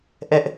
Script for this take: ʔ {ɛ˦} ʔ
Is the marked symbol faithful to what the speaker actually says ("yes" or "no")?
yes